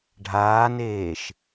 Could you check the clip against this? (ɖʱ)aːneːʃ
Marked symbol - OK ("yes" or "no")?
yes